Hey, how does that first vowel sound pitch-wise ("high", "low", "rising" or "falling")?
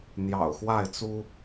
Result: low